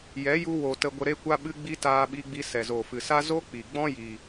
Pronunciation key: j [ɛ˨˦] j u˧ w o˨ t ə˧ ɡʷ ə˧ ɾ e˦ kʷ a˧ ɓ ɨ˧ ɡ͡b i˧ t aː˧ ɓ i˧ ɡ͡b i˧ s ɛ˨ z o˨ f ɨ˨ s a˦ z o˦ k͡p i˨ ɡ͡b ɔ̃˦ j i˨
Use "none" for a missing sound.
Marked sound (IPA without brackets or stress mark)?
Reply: ɛ˨˦